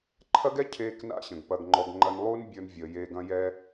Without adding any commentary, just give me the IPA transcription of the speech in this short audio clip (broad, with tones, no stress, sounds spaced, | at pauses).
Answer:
ǃʰ ɐ˦ ɡ ɛ˦ cʰ eː˦ k n a̰˦ ɕ ə̃˨ ɡ p ɐ˨ ɡ ŋ͡ǃ ɔ˨ ɡ ŋ͡ǃ ɐ˧ n lˠ uː˦ n bʲ ə˞˧ n vʲ əː˨ j eː˧ ɡ ɐ̃˦ j ɛː˦